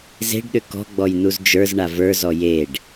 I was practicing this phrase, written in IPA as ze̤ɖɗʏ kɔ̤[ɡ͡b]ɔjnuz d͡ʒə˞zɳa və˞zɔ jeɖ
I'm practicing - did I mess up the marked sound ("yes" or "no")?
no